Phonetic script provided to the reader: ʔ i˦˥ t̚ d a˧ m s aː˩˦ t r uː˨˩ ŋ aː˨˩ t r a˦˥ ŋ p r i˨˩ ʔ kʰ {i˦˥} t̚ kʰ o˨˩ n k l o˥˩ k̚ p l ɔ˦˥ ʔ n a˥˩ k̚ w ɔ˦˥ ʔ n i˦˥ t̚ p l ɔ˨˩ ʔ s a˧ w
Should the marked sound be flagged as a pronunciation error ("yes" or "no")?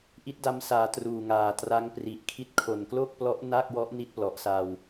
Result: no